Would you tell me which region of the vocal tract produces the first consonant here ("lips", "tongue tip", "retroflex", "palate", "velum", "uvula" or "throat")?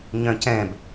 palate